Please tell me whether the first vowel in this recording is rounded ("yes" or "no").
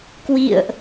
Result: no